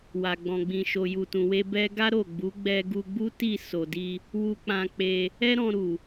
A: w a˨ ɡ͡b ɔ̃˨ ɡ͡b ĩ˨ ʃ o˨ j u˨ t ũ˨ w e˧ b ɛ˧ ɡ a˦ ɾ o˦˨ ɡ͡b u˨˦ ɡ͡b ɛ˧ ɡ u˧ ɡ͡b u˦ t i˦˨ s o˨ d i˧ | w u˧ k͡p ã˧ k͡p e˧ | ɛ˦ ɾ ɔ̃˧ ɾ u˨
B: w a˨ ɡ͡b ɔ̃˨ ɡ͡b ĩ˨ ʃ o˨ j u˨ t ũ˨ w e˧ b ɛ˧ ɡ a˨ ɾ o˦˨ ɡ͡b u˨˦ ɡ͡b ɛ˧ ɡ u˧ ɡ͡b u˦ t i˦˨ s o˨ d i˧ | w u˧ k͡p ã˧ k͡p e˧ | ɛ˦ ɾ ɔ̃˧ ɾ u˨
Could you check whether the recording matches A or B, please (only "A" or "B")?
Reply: A